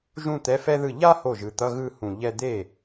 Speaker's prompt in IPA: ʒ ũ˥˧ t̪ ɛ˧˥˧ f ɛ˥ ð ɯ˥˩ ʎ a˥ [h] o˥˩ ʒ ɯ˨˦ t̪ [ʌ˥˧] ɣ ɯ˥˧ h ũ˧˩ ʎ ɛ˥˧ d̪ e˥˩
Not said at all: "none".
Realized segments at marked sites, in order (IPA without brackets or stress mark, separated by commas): h, ʌ˧˥˧